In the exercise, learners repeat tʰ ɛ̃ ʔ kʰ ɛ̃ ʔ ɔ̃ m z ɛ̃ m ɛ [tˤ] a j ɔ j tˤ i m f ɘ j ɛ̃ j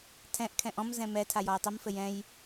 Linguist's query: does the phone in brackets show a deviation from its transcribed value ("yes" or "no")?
yes